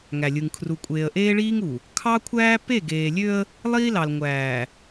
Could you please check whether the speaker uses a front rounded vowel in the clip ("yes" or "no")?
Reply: yes